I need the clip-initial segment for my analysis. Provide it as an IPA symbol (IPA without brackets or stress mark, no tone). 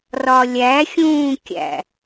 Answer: r